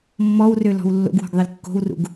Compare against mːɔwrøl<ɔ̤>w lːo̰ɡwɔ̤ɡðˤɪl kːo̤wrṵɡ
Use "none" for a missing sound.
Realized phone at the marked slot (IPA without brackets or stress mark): ɔ̤